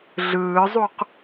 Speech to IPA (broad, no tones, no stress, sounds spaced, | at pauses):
ɮ ɯː zˤ u q